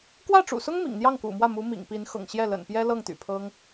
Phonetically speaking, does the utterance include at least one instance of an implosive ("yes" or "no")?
no